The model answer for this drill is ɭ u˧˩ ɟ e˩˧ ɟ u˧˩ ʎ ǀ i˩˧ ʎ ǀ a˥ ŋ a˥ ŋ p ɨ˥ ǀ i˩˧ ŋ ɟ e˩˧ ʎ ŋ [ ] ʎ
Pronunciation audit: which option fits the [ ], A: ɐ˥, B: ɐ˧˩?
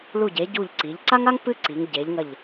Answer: B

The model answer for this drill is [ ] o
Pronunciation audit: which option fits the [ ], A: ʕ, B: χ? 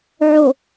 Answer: A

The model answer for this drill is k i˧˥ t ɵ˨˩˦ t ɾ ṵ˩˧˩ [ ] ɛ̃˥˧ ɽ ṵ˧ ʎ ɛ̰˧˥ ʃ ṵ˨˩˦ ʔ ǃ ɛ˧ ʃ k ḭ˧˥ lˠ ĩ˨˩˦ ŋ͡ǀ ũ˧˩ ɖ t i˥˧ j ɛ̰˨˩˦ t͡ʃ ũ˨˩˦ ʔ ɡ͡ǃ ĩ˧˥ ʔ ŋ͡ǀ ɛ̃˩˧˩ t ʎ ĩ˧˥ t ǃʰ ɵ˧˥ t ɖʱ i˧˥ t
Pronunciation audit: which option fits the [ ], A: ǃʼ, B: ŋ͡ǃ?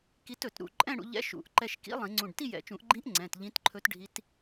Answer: A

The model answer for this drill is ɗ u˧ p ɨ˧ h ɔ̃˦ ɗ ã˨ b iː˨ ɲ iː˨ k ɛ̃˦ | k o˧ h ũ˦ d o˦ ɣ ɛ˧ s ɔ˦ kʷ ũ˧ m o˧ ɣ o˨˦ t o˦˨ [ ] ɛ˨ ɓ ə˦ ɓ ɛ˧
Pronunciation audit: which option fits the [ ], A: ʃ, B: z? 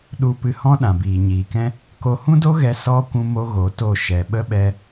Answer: A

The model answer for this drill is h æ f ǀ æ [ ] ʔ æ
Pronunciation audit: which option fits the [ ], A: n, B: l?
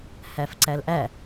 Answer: B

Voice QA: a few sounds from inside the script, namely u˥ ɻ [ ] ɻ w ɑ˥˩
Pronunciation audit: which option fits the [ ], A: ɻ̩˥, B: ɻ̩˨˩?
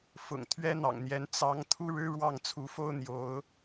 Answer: A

